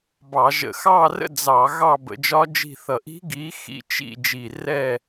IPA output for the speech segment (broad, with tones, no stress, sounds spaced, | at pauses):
b ɑ˧˩˧ ʒ ə̰˧˩˧ x ɑː˦˨ r ə̰˦˨ d͡z ɑ˧˩˧ ɣ ɑ˦˨ b ə̰˧˩˧ d͡ʒ ɒ˦˥ d͡ʒ i̤˦˨ θ ʌ˨˩ ʔ i̤˦˥ ɡ iː˨˥ x ḭ˦˨ t͡ʃ ḭ˦˨ d͡ʒ iː˨˩ r ɛː˦˨